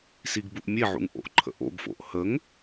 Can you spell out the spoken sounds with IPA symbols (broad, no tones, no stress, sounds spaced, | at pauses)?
s i ɡ b u ʔ mʲ e ʕ ṵ ŋ ʔ o̰ ʔ ǃʰ ə̰ ʔ o̰ ɡ f o̰ ʔ h ə ŋ